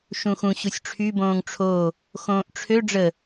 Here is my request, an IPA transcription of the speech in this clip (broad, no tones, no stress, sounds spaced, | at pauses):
ʃ ũ x ũ ɕ u sʲ ʈ͡ʂʰ y b õː ŋ ʈ͡ʂʰ o | x õː ʔ ʈ͡ʂʰ ø ɖ͡ʐ ə